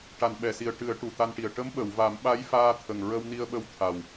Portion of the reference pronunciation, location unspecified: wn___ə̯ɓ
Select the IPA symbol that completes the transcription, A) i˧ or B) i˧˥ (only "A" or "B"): A